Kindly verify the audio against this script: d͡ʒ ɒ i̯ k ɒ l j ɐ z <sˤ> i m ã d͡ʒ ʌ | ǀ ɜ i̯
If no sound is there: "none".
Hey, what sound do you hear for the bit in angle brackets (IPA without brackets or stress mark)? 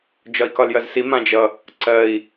s